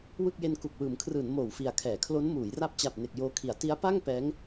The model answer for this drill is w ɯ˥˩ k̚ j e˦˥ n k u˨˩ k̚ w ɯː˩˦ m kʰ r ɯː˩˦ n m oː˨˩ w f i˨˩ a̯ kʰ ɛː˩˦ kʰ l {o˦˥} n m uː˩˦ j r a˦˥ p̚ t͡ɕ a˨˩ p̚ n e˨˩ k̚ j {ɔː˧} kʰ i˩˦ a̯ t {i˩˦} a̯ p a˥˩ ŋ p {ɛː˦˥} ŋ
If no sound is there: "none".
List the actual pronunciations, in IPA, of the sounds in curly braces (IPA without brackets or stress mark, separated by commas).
o˦˥, oː˧, i˦˥, ɛː˦˥